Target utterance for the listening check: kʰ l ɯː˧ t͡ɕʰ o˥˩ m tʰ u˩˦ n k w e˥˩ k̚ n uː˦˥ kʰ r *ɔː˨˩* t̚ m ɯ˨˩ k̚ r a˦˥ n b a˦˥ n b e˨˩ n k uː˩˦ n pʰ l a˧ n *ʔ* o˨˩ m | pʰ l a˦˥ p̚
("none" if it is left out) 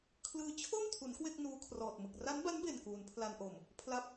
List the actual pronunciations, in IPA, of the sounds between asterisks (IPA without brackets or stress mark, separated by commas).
ɔː˨˩, ʔ